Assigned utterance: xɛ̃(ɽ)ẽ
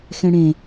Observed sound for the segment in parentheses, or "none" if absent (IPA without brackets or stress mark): ɽ